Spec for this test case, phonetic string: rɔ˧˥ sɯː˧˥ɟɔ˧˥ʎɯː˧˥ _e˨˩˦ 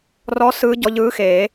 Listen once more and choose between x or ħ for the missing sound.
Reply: x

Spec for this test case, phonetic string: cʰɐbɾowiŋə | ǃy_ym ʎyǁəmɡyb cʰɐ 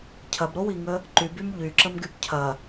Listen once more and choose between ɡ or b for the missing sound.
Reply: b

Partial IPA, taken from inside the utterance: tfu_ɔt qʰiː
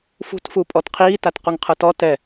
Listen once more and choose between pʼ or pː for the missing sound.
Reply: pʼ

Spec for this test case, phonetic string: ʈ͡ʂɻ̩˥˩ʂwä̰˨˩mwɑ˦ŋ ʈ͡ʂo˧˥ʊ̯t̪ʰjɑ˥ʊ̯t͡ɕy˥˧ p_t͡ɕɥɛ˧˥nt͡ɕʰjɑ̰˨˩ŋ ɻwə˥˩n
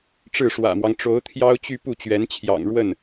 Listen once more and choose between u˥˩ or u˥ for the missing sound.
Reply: u˥˩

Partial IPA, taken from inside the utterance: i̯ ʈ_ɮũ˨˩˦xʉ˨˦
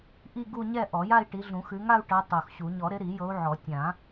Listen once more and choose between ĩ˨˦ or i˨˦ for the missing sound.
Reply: i˨˦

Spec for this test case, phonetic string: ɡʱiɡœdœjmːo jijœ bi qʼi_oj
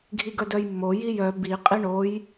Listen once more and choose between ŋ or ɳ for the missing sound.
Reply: ɳ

